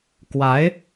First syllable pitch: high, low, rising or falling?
rising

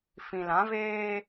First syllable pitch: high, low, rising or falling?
low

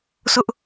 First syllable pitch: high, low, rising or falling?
high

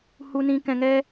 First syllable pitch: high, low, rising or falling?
low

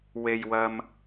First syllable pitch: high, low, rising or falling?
low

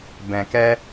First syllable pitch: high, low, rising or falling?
low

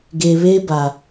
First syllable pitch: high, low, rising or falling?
low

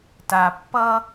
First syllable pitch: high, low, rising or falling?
low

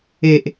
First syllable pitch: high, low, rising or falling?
low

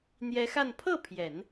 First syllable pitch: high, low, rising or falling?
rising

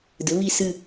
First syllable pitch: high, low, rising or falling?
rising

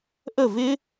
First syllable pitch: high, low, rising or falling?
falling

